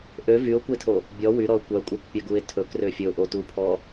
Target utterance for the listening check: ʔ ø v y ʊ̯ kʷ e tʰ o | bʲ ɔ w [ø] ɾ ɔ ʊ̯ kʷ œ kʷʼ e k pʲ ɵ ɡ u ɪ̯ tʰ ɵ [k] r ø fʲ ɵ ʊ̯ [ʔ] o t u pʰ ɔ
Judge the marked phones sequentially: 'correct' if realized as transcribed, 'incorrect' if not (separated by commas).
incorrect, correct, correct